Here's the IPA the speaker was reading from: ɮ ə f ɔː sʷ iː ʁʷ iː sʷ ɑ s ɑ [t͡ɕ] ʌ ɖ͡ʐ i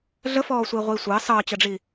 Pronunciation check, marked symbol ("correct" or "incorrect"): correct